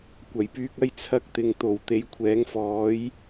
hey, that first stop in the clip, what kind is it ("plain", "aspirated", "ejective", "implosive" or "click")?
plain